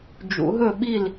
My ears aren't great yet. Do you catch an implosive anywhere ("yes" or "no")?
yes